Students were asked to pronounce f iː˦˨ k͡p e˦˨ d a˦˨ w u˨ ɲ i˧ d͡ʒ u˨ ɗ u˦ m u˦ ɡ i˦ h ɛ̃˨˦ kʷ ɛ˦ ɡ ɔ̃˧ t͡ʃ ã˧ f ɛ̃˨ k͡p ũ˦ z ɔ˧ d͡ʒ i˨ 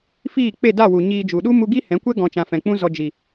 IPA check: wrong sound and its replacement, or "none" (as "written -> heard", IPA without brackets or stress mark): none